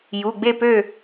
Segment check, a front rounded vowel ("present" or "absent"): present